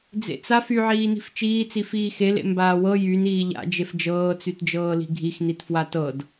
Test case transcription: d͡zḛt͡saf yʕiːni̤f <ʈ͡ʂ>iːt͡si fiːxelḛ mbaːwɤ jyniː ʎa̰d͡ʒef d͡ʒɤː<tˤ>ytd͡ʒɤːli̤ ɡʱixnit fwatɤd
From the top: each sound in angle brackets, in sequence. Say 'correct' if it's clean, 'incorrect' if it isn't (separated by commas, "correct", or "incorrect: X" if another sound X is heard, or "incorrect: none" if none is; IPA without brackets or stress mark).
incorrect: t͡ʃ, incorrect: t͡s